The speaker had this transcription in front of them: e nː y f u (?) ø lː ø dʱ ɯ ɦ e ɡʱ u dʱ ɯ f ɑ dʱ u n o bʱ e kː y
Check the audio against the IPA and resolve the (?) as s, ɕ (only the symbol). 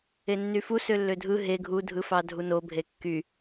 s